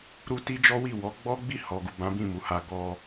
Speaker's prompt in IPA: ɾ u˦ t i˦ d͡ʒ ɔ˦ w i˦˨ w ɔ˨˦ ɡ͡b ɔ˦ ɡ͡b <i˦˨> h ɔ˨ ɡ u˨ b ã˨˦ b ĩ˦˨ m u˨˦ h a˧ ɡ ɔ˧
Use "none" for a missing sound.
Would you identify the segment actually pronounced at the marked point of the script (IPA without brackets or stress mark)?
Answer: i˦˨